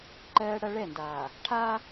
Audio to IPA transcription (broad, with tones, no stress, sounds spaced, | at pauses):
ǃ ɜː˦ ɽ ɐ˦ ɭ ɛ˦˨ n d aː˨ | ʈʰ aː˦